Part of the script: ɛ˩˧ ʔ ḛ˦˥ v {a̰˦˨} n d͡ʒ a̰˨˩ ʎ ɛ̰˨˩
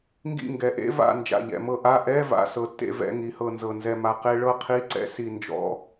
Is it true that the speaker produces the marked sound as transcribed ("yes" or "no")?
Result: yes